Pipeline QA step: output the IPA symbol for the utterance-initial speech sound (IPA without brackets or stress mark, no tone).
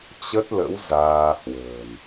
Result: t͡ɕ